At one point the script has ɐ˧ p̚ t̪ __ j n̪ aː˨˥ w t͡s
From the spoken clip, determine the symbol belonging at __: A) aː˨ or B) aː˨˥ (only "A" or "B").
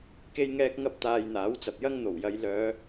A